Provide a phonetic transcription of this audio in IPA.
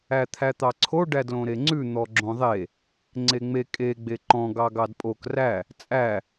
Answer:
æ t̪ʰ æ t̪ ɑ ǀʰ o ɖ æ d l õ ɾ e ŋ͡ǀ ʉ n̪ ɔ ɡ͡ǁ õ ðˤ e | ŋ͡ǀ e ŋ͡m e kʼ e ɡ͡b e ǃ ɔ̃ ɡ ɑ ɡ ɑ d pʼ o k r æ | t͡sʼ æ

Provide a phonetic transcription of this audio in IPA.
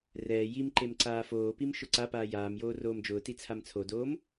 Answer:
r ɛː j i m ǃ e m ǀ aː f oː p i m ʃ ʊ ǀ a p aː j aː m j oː r oː m d͡ʒ ʊː t i t͡sʰ a m t͡sʰ o d oː m

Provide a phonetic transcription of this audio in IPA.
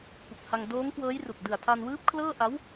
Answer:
p u˨˩ k̚ h a˧ ŋ d oː˦˥ ŋ k w ɤː˦˥ j r u˨˩ k̚ d ɯ˨˩ a̯ tʰ a˧ n w ɯː˦˥ p̚ kʰ l ɤː˥˩ ʔ a˦˥ w

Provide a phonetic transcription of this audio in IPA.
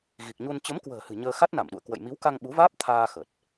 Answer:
ɣ i˨˩ k̚ ɲ u˧ n t͡ɕ ə˨˦ m k w ə̤ː˨˩ h ɨ̤˨˩ ɲ əː˧ x a˦˥ t̚ n a˧˩ m ɗ ṵ˧˨ ə̯ k w ə̰˧˨ j m i˨˦ w k a˧ ŋ ɓ u˨˦ v aː˦˥ p̚ t̪ʰ aː˧ x ə˨˩ t̚

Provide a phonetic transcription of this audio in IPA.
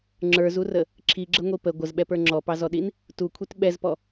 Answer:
ŋ͡ǁ ə˞ z u r ə | ǁʰ i ɡ͡ǁ ə ŋʷ i p ə ɡʷ ə z ɓ ɛ p ə˞ ŋ͡ǁ ɔ p ɑ z ɔ ɗ i n | t u kʷʰ i t ɓ ɛ z p ɔ

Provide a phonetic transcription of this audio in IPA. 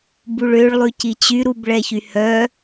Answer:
b u ɭ ø ɭ lˠ ʉ c i t͡ɕ y ɾ u b ɭ ɛ ç y h œ

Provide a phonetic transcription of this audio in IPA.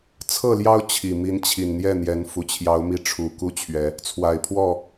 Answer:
t͡sʰ ɤ˥˨ l j ɑ˦ ʊ̯ t͡ɕʰ i˨˩ m i˨˦ n t͡ɕʰ i˨˩ n n̪ j ɛ˥˨ n̪ j ɛ˨˦ n f u˨˩ t͡ɕʰ j ɑ˨˦ ʊ̯ m i˨˦ ʈ͡ʂʰ u˨˩ k u˥˨ t͡ɕʰ ɥ ɛ˨˦ | t͡sʰ w a˨˩ ɪ̯ pʰ w ɔ˥˨

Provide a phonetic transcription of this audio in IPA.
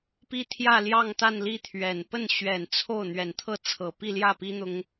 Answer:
p i˥ t̪ʰ j ä˥˧ l j ɑ˥˧ ŋ t̪ a˥˧ n l i˥˩ t̪ʰ ɥ ɛ˨˩ n p ə˥˩ n ɕ ɥ ɛ˨˩ n t͡sʰ o˥˩ ʊ̯ n̪ ɥ ɛ˨˩ n t̪ʰ ɤ˥˩ t͡sʰ ɤ˨˩ p i˥˧ l j ä˥˩ p i˥ n̪ ʊ˥ ŋ

